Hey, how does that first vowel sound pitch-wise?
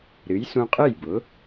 rising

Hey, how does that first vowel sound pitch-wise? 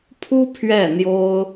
high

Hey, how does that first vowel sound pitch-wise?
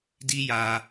high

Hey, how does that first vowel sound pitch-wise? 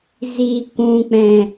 low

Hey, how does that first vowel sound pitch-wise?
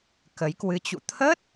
rising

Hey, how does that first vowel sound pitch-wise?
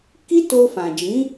high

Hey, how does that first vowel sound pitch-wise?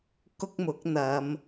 high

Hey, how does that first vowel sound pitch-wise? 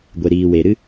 low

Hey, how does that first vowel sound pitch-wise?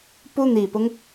high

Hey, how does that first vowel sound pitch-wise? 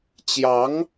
rising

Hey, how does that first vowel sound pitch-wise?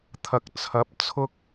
low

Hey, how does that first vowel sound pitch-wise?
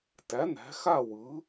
rising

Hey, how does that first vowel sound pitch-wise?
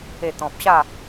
low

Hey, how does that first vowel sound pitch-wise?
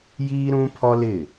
high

